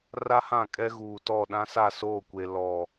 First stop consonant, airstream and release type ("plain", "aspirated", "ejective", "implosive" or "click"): ejective